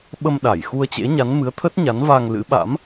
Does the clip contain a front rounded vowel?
no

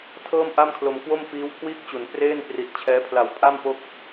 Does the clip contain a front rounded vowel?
no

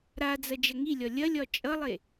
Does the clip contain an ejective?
yes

